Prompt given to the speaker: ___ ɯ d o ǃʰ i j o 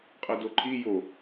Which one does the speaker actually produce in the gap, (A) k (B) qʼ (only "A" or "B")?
B